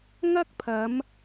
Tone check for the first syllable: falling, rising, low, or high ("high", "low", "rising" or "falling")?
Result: high